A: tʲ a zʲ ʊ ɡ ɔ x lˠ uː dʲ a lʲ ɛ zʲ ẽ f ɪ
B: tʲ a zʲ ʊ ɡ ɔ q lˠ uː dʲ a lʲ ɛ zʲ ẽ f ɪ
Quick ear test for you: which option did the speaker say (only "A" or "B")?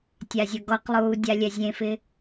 B